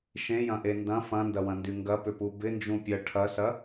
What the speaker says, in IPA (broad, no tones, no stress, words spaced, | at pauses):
ʃẽjɐ̃ʔe ndɐ̃ fɐ̃ndɐwɐ̃ndy ŋɡɐpʏpu bɪnd͡ʒũ pʲɐ ʈʰɐsɐ